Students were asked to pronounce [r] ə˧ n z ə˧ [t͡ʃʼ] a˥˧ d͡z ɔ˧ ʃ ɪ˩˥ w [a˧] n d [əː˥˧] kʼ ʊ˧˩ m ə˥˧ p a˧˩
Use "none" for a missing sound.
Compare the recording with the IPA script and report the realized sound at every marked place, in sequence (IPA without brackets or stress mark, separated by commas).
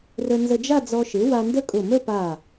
r, d͡ʒ, a˧, ə˥˧